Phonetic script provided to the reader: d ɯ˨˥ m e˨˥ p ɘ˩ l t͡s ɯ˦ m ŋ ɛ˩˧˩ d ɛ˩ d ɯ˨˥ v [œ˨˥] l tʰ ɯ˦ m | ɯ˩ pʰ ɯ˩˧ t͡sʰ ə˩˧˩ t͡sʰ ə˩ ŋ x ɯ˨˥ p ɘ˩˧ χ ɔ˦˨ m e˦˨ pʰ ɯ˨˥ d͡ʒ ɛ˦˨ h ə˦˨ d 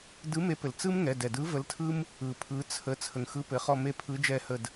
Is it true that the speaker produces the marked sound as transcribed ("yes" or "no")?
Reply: no